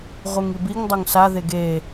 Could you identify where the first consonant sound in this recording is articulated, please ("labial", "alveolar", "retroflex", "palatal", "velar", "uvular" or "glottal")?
uvular